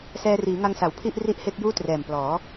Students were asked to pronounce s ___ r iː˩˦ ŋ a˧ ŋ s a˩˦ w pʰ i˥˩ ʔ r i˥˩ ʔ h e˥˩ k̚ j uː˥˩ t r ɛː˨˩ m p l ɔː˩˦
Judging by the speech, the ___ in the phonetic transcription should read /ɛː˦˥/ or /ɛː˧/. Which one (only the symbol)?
ɛː˧